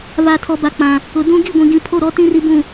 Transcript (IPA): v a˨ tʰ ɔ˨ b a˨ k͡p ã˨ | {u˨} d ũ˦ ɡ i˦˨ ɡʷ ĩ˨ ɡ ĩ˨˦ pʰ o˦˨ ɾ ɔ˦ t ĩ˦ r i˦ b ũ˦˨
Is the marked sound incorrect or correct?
incorrect: ʊ˨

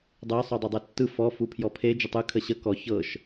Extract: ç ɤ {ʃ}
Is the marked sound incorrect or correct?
correct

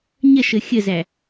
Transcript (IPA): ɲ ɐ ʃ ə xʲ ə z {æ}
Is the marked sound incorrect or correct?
correct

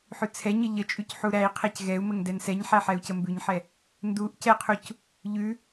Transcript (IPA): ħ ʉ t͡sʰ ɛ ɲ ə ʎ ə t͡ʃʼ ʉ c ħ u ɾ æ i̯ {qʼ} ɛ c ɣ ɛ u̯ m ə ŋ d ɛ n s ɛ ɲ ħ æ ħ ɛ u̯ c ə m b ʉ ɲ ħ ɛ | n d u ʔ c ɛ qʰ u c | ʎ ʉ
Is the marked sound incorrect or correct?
incorrect: qʰ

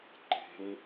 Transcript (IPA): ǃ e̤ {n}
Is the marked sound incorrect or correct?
correct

